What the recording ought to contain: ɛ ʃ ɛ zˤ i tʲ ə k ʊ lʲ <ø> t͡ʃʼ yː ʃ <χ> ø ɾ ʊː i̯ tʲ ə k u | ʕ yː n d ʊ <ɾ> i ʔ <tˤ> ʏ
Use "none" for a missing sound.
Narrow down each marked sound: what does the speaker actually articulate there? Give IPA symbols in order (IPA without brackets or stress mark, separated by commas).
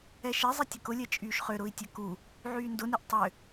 ɛ, χ, n, tˤ